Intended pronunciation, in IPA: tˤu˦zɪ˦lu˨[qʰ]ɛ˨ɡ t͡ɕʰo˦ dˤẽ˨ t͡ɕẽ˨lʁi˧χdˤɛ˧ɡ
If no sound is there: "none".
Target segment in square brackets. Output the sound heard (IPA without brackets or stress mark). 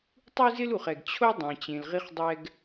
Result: χ